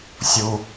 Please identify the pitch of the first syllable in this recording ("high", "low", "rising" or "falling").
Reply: low